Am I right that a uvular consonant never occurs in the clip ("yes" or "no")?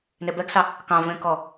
yes